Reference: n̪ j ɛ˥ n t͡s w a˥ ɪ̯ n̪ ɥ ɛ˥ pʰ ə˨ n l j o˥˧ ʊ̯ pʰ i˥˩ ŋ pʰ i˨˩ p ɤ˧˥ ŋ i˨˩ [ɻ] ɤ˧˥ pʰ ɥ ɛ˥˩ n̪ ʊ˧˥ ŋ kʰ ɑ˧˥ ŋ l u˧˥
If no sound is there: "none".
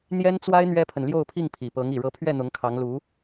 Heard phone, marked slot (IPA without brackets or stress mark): ɻ